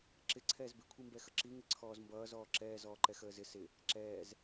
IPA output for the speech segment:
ǁ ɪ ǀʰ ɛː z b ɪ kʷʰ i m b ɛ x ə ǁ i ŋ ɪ ǀʰ ɔː z m b ʌː z ɔː ǁ ɛː z ɔː ǃ ɛ x əː z ɪ s ɪ | ǁ ɛː z

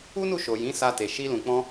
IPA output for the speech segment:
u˦ n u˦˨ ʃ o˨ j ĩ˨˦ s a˧ t e˨ ʃ i˧ l ũ˨ k͡p ɔ̃˧

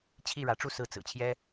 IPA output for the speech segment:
t͡ɕʰ i˥˩ ɻ ä˧˥ ʈ͡ʂ u˥˧ s ɹ̩˥˩ t͡s ɹ̩˨˩ t͡ɕʰ j ɛ˥

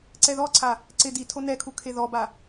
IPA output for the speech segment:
ǀ ɛ ð ɔ ǀʰ a | ǀ ɪ d i tʰ o n ɛ kʰ u kʰ e ð ɔ b a

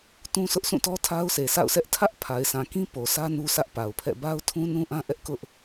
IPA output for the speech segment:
t ũ˦ sʰ ʊ˦ ʔ s ũ˦˨ t ɔ˦ tʰ a˦ ʊ̯ s e˨ sʰ a̰˦˨ ʊ̯ s ɛ˦ ʔ tʰ ä˦ ʔ pʰ a˨ ɪ̯ sʰ ã˨ k ĩ˦ p o˨ sʰ ä˦ n u˦ s ä˦ ʔ p a˨ ʊ̯ pʰ ɛ̰˦˨ b a˦ ʊ̯ tʰ ũ˦ n ũ˦ ʔ ã˦ ʔ ɛ˦ ʔ k ʊ˦ ʔ

